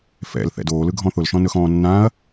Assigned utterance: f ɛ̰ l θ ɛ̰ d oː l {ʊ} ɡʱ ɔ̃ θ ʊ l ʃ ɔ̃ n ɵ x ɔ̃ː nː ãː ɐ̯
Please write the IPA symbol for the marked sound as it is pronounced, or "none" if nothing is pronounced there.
ɯ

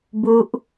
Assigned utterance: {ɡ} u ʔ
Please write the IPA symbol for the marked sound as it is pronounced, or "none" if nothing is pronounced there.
b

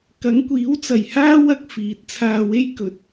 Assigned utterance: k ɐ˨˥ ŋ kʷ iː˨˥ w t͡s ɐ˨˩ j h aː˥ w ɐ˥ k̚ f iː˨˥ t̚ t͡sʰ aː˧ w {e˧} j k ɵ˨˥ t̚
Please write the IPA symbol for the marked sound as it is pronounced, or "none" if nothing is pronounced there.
e˥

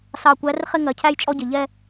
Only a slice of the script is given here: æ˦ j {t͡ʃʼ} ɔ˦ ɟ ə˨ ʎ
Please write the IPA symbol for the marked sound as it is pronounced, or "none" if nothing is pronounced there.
t͡ʃʼ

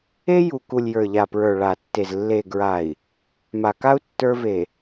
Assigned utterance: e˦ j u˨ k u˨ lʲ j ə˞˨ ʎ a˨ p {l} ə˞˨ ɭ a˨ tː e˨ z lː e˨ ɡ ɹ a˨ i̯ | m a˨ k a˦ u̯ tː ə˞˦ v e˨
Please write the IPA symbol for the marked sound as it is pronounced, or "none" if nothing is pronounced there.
ɹ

